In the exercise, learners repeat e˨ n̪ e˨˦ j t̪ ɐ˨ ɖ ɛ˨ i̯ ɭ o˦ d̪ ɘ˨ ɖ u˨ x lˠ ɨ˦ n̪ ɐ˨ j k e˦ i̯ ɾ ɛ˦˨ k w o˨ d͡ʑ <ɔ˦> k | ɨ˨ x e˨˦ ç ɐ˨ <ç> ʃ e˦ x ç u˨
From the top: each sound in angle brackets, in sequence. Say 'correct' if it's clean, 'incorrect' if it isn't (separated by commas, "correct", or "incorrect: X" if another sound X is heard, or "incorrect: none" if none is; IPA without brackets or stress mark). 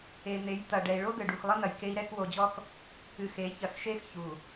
correct, incorrect: x